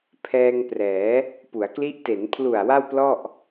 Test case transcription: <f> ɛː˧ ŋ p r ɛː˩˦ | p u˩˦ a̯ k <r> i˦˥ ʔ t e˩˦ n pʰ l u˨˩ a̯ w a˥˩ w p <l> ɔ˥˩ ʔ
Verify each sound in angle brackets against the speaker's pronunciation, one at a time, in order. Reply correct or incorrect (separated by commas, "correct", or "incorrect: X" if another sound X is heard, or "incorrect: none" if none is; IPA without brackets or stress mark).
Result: incorrect: pʰ, incorrect: l, correct